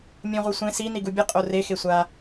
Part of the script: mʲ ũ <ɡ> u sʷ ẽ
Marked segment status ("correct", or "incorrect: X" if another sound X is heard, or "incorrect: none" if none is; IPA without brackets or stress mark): incorrect: ʁ